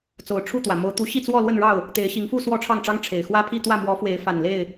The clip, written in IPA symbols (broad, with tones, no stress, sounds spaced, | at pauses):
t͡s o˨˩ ʊ̯ ʈ͡ʂʰ u˥˨ t̪ w ä˩ m o˨˦ ʊ̯ t̪ u˨˦ ɕ i˥˨ t͡s w ɔ˥˨ l w ə˥˨ n ɻ ɑ˥˨ ʊ̯ | t̪ e˨˦ ɪ̯ ɕ i˨˦ ŋ f u˥˨ s w ɔ˥˨ ʈ͡ʂʰ ɑ˥˨ ŋ ʈ͡ʂ ɑ˦ ŋ ʈ͡ʂʰ e˨˩ ɪ̯ x w ä˦ pʰ i˥˨ t̪ w ä˥˨ m w ɔ˨˦ f w e˨˦ ɪ̯ f a˨˩ n l e˥˨ ɪ̯